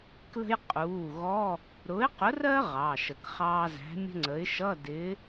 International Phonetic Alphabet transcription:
k l ə̤˥ j qʼ uː˩˧˩ ɣ ɔ˧˥˧ | ɾ ʊ˨˥ ɪ̯ q ʊ˨˥ r ɜ˥ ʁ ɑː˩˧˩ ʃ ə˨˩˦ k χ ɑː˥ z æ̤˨˥ mʲ ə̤˥ ŋ͡ǀ ə˨˥ ɪ̯ ʃ ʌ˧˥˧ d ɪ˨˥

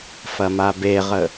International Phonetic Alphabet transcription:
f ɐ m a b e ʁ ə

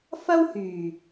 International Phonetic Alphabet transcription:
f ɐ˥ w h yː˨˩

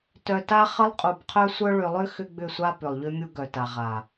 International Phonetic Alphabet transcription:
t œ˨ t a˦ χ ə˦ lˠ qʼ u˨ b qʰ œ˦ sʷ œ˦ ɭ ʏ˨ lˠ ʏ˦ x ʏ˦ ɡ͡b ʏ˦˨ sʷ a˦ p ʏ˨ lˠ ʎ ʏ˦ mʲ u˦ ɡ œ˨ t a˨ ʁ a˨

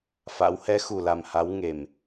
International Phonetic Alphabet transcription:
f a̰˧˥ w h ɛ˨˦ x u˨˩ l a˨˩ m h a˨˦ w ŋ e˨˩ m

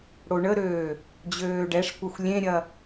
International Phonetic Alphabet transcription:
ɽ o ɳ ə ɾ øː | d͡ʑ øː ɖ ɛ ʂ kʷ ɐ xʷ lʲ ẽ ɾʲ ɐ

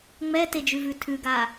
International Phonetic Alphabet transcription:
ŋ͡m ɛ t e d͡ʒ ʉ v ʉ tʰ ʉ ɡ a

